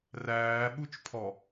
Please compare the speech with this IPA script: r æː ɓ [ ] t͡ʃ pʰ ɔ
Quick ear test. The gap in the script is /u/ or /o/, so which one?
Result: u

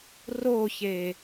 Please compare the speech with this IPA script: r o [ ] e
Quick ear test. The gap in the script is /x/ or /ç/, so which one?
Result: ç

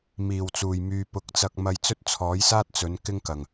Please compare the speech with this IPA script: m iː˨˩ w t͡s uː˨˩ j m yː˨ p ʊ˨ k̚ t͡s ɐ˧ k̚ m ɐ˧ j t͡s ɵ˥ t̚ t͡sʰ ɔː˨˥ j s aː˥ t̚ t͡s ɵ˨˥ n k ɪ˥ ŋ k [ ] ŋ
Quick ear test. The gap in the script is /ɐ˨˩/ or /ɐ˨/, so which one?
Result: ɐ˨˩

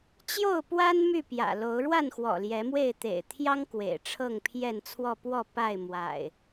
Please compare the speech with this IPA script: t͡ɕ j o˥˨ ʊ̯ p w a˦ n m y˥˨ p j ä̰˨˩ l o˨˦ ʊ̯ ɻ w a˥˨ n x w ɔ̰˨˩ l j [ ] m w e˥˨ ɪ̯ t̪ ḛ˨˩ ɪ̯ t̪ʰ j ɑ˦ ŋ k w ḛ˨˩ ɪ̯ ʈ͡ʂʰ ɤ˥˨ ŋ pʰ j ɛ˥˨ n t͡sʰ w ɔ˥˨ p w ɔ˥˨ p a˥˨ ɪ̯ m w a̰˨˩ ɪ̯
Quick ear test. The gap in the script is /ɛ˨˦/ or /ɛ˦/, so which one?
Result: ɛ˨˦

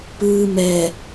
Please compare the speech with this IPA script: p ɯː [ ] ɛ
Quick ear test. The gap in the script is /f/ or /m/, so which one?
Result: m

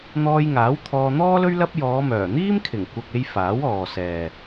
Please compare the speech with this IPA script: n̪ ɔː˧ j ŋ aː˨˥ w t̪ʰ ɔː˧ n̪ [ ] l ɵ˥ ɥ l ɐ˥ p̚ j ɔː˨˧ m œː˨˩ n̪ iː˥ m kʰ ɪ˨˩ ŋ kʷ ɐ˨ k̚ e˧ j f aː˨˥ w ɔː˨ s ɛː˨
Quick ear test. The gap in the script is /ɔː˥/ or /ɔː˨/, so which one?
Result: ɔː˥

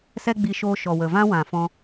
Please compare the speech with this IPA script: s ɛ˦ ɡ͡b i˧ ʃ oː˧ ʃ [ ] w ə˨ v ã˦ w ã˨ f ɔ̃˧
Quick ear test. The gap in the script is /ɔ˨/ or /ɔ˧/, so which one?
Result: ɔ˨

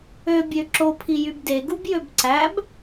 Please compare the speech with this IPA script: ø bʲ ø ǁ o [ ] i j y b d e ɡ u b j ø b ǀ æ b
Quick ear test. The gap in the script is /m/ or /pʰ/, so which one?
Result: pʰ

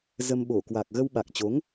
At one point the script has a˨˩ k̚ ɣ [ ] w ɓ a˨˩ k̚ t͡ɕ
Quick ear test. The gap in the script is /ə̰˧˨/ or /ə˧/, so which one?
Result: ə˧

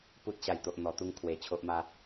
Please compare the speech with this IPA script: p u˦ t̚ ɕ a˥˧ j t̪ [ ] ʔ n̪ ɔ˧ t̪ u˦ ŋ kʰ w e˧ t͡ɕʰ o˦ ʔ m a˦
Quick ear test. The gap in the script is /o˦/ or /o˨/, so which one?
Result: o˦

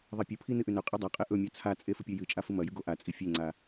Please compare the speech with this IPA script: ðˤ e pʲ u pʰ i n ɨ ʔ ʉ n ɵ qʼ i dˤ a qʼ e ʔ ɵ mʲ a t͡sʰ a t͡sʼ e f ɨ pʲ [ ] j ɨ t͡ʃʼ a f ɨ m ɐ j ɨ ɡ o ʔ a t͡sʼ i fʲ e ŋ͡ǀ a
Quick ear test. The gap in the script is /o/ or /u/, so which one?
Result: o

